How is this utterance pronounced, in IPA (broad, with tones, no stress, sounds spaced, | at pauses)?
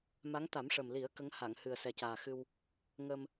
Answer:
m a˧˥ ŋ t̪ a˨˩˦ m ʂ ə˨˩ m l i˨˩˦ ə̯ k ə˧˥ ŋ h a˨˩˨ ŋ h ɨ˨˩ ə̯ s ɛ˨˩ c aː˨˩ x ɨ˧ w | ŋ ə˧ m